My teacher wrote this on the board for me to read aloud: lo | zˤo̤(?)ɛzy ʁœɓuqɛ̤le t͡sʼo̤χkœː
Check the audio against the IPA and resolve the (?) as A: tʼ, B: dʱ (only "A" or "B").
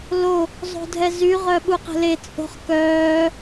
B